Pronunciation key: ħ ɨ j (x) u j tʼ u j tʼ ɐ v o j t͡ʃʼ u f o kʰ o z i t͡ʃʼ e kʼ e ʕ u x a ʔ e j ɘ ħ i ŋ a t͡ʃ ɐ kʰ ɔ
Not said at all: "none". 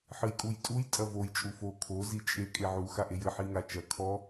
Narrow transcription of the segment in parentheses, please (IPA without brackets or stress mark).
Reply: kʼ